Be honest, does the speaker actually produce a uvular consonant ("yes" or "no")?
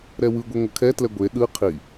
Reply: yes